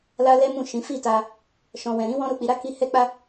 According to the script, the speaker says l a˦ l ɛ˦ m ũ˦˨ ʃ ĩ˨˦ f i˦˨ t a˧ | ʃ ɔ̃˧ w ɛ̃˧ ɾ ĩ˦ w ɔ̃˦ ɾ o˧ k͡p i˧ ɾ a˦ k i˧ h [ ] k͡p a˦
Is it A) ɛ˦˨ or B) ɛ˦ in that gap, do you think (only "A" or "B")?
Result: B